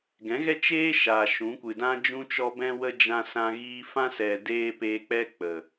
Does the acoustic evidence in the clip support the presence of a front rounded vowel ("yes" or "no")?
no